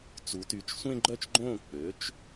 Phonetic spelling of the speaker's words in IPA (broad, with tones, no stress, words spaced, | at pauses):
t͡su˩˧ty˩˧t͡ʃ sʷẽ˥˧ɡ͡ǃœ˥˩t͡ʃɡ͡ǃõː˥˩ k͡pø˩˥t͡ʃ